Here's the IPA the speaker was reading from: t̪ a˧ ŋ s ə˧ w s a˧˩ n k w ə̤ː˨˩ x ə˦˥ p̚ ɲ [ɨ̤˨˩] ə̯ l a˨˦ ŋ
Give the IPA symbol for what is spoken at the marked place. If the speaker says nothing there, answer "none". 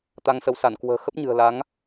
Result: ɨ̤˨˩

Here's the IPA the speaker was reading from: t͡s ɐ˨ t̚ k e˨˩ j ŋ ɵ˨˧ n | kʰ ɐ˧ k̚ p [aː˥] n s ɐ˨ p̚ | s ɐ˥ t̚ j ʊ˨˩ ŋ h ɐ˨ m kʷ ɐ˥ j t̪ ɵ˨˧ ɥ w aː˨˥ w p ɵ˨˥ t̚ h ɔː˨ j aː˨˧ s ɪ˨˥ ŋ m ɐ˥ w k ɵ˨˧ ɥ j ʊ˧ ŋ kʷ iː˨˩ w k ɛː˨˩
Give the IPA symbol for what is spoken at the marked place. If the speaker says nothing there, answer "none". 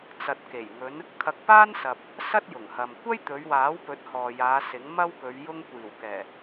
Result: aː˥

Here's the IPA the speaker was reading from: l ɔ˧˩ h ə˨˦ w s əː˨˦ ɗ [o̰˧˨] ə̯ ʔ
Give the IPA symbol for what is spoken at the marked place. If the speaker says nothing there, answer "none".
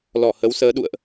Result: ṵ˧˨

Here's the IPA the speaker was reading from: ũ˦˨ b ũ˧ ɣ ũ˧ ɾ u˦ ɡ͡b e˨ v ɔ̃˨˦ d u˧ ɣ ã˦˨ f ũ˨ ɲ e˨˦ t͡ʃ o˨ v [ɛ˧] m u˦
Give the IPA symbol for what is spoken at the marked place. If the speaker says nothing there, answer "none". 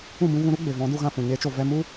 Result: ɛ˧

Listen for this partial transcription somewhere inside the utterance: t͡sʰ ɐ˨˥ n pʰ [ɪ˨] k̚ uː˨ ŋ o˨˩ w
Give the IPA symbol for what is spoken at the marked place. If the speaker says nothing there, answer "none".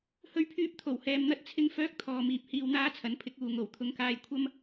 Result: ɪ˨˥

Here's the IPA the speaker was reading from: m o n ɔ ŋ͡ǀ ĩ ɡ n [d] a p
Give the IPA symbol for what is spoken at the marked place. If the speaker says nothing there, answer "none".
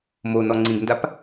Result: d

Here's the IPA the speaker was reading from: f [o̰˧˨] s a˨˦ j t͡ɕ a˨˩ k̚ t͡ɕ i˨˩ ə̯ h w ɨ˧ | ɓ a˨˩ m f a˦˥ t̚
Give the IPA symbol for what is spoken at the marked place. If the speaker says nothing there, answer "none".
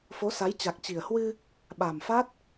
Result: o˨˦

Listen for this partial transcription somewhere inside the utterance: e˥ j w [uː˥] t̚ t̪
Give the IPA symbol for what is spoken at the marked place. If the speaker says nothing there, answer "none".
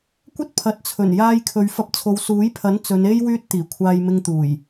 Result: yː˥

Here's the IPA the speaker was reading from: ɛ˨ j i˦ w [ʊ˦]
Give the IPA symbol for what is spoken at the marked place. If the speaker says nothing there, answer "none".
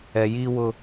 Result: ʊ˦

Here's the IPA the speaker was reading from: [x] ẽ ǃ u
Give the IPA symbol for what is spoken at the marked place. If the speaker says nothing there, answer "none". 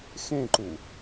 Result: x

